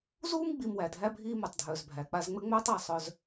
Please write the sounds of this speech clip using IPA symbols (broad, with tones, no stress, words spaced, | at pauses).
zuː˥m ɡ͡bi˧m wæ˩dʱæ˥bʱiː˥ mu˩tˤdʱœː˩zbʱæ˩ k͡pa˧zŋ͡mɘ˥ŋ͡mœː˥tˤ a˩sˤœ˧z